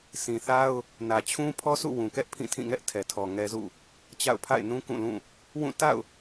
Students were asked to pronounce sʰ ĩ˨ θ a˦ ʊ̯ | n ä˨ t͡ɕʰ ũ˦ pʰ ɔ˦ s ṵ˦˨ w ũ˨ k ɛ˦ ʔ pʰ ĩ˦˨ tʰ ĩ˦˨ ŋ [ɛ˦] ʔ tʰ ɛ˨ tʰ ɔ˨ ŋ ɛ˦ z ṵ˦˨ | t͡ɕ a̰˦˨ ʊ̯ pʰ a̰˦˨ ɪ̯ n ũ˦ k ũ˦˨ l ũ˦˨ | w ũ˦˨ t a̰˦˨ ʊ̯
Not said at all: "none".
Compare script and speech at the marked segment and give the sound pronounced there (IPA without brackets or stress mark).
ɛ˦